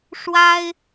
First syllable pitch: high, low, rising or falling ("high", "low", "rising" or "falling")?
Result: high